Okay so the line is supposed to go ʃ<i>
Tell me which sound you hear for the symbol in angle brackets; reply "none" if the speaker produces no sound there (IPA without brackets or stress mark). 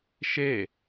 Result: e